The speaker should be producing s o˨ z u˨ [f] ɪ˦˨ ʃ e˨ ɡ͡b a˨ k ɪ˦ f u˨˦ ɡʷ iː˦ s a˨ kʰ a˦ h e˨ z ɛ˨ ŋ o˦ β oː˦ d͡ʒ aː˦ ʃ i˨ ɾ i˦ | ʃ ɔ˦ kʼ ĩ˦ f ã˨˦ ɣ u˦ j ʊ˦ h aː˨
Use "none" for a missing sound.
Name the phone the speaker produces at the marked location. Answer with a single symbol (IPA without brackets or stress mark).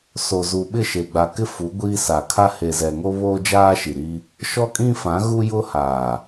ɓ